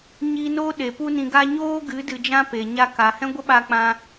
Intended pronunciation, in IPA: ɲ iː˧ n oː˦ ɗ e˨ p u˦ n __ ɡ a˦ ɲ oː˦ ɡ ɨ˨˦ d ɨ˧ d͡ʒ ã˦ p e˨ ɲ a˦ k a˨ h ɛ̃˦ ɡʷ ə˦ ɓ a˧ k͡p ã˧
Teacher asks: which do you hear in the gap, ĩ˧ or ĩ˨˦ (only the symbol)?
ĩ˧